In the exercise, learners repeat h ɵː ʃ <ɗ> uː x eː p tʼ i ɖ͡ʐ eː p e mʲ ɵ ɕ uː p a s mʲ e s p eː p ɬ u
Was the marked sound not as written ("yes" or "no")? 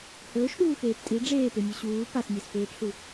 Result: no